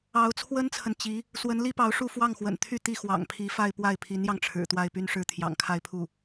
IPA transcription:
ɑ˧˥ʊ̯t͡sʰwə˥nt͡sʰə˨n t͡ɕi˧˥ | swə˧˥nli˥pɑ˧˥ʊ̯ʂu˥˧ fwɑ˥˩ŋxwə̰˨˩nt̪ʰy˥˧ t̪i˥˩xwɑ̰˨˩ŋpʰi˧˥fa˥˧ɪ̯ pwa˥˩ɪ̯pʰi˧˥njɑ˧ŋʈ͡ʂʰɻ̩˨˩ t̪wa˥˧ɪ̯py˥˧n ʂɻ̩˥˩t̪ʰjɑ̰˨˩ŋkʰa˥˧ɪ̯pʰu˥˩

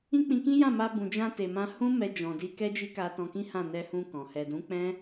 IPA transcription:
ĩ˦k͡pĩ˧kĩ˦ jã˦˨ma˧ bũ˨d͡ʒã˧ te˨mã˧ hũ˦ mɛ˧d͡ʒɔ̃˨di˧ kɛ˦d͡ʒi˦ka˧ tɔ̃˧kĩ˦hã˦˨ nɛ˧hũ˧ kɔ̃˨ hɛ˨dũ˨˦k͡pɛ̃˦

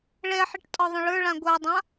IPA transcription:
ɭɛħiʈ tʼɒðˤə̃ɭə˞ɭã ɡʷadˤã

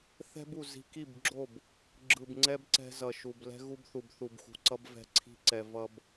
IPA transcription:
θɛ̤˦bu˨ zi̤˨ki˦˨bɡ͡ǁo˦˨b | ɡ͡ǁɯ˨b ŋ͡ǀɛ˦b ǀɛ̤˦zʌ˨ʃu˨b lɛ̤˦ɣu˦bθu˨bθu˨b xṳ˨ǀʌ˦b vɛ̤˦ ǀʰi̤˦ǀɛ˨ vʌ˨b

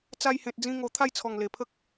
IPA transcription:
t͡sa˧jhẽ˨t̚ d͡zĩ˧ŋo˨˩ t̪ʰa˥˧jt͡sʰɔ˨˩ŋ le˨˩pʰə˦k̚

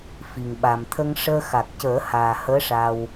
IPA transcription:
fi˨˩ŋɓa˨˩mt̪ʰə˧ŋʂəː˧ xa˨˩k̚cəː˨˩˦ haː˨˩həː˧˥ʂa˧w

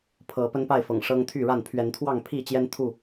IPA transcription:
pʰɤ˨˦pə˦npa˥˨ɪ̯fɤ̰˨˩ŋ ʂɤ˦ŋt̪ʰy˥˨ɻa˥˨n pʰɥɛ˨˦nt̪ʰwɑ˥˨ŋ pʰi˥˨t͡ɕjɛ˦nt̪ʰu˥˨

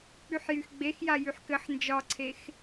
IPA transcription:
k͡pyħjyxɡ͡bexja jyħkɘħ nd͡ʒɒǀʰex

